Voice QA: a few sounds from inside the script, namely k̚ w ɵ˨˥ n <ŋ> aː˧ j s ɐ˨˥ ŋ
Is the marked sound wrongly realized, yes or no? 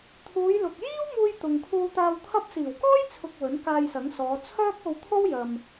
yes